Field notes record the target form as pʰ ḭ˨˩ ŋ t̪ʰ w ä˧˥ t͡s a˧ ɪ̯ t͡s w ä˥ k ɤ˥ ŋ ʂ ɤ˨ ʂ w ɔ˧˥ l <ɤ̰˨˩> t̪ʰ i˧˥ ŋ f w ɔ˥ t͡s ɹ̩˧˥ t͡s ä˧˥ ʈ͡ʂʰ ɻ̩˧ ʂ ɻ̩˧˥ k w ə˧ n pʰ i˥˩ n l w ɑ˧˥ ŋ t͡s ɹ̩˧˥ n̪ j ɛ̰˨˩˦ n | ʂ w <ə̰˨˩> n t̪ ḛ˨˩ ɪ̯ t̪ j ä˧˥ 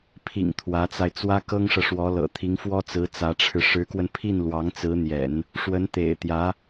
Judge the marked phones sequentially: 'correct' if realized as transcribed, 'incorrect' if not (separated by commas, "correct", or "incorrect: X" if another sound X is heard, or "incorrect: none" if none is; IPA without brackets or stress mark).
correct, incorrect: ə˧˥